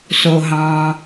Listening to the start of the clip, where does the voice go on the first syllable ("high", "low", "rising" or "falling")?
low